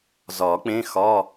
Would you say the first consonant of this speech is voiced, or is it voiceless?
voiced